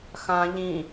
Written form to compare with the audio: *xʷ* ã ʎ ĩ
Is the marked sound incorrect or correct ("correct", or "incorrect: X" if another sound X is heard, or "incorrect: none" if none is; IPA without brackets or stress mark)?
incorrect: x